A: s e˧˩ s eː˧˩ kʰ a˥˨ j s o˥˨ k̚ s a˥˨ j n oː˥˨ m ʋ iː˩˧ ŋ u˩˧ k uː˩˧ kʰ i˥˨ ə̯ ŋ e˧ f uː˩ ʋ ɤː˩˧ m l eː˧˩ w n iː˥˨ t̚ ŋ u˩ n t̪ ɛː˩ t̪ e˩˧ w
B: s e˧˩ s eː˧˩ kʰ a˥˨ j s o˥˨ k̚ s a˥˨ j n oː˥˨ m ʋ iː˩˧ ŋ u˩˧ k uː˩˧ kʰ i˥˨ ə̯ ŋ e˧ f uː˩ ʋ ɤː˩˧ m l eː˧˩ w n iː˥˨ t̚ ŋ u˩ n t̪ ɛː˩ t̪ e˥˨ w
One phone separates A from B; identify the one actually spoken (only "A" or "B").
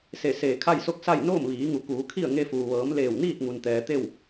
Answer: B